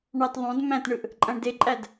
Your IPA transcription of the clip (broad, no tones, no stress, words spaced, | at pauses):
ɳɑt ðˤõd mæ̃tɳɯʔ | ǃʼæ̃ɳdeǃʼæd